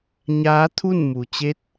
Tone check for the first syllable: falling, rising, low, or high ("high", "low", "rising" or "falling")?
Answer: rising